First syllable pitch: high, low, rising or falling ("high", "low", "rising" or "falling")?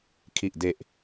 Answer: low